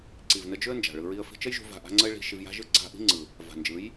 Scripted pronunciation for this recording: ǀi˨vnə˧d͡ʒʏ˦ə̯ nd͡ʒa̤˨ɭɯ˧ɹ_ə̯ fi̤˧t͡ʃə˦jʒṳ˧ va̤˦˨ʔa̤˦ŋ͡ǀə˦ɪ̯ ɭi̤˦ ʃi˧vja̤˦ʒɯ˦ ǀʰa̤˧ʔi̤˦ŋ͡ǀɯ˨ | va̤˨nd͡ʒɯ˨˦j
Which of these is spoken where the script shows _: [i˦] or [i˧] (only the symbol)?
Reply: i˦